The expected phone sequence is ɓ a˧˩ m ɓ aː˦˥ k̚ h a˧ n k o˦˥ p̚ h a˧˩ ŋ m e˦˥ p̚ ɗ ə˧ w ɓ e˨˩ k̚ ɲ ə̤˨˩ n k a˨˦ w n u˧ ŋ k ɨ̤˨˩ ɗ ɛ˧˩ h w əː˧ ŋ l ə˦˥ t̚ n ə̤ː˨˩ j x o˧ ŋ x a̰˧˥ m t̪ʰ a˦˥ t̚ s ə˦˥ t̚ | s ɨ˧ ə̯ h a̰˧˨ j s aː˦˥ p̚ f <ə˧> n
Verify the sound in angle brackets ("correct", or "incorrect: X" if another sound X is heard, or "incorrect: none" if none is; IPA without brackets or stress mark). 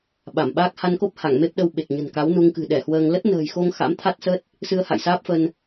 correct